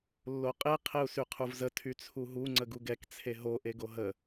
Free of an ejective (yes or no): no